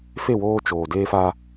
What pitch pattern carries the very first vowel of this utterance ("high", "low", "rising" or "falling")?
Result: falling